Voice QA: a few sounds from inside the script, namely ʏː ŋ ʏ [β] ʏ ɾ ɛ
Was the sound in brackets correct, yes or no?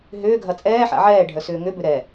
no